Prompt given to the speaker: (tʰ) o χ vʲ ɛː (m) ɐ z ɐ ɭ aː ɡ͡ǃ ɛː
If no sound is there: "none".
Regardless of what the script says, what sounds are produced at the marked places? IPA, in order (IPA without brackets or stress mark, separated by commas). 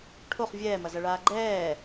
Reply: ʈʰ, m